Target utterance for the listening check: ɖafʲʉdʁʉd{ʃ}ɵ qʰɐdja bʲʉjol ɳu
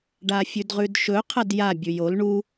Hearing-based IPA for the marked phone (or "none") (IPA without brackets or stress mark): ʃ